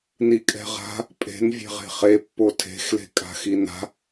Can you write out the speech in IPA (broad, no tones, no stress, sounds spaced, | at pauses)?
n i kʼ ɛ̤ ʁ a̤ | pʼ e̤ n vʲ e̤ ʁ e̤ χ e pː o tʰ e̤ x l e̤ kʼ a̤ x i n a̤